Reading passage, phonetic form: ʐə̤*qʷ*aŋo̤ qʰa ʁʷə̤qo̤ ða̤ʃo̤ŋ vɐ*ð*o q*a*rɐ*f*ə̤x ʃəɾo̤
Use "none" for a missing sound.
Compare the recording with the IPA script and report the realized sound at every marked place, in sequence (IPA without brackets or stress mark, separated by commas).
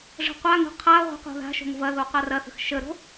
qʷ, ð, a, θ